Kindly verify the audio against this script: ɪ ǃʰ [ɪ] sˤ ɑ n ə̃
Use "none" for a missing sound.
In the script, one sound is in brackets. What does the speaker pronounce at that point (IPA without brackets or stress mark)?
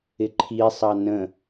i